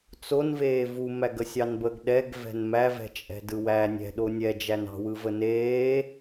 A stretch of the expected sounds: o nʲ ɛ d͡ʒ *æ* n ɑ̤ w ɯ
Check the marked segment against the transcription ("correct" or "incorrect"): correct